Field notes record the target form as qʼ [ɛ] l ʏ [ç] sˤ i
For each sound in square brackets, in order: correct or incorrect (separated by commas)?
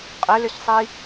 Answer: incorrect, correct